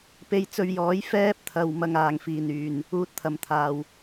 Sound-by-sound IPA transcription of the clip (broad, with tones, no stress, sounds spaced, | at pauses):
p e˧ j t͡s ɵ˧ ɥ j ɔː˨˥ j f ɛː˥ p̚ t̪ʰ ɐ˨ w m ɐ˨ ŋ aː˨˩ ŋ f iː˨˩ n yː˨˩ n | uː˧ t̚ t̪ʰ ɐ˨ m t̪ʰ aː˨˩ w